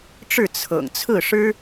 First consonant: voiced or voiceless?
voiceless